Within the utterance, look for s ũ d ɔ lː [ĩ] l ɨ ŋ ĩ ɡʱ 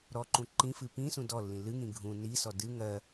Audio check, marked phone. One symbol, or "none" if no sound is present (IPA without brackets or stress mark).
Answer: ĩ